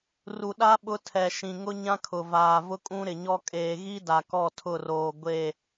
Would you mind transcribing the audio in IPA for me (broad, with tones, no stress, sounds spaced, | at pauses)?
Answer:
r u˨ ɗ a˦ ɓ ʊ˦ tʰ ɛ˨ ʃ ĩ˨ ŋ ʊ˦ ɲ ã˦ kʰ ʊ˨ v aː˨ v ʊ˦ kʼ ũ˦ ɾ ɪ˨ ɲ ɔ˦ kʼ eː˨ ɣ i˦ d a˨ k ɔ˦˨ tʰ ʊ˦˨ r oː˨ ɡʷ e˦˨